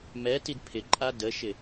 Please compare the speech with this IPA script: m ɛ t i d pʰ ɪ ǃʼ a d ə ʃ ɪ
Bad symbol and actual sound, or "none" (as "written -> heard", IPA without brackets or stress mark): none